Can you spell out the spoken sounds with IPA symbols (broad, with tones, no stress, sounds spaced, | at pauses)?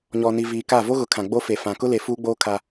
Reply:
ɲ ɔ˨ n i˨ v iː˨ k a˦˨ v o˦ ɣ ʊ˨ kʰ ã˨ ɡ͡b o˦ f e˨ f ã˨ k ʊ˦ l e˨ f uː˦ ɡ͡b oː˦ kʰ a˦